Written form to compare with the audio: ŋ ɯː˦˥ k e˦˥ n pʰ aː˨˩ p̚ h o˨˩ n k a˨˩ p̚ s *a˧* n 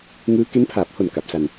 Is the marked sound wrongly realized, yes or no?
no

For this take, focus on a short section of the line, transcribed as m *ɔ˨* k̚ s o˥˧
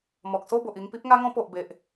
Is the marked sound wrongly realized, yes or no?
no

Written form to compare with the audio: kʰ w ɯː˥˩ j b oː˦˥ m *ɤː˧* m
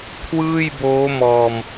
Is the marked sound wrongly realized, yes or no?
yes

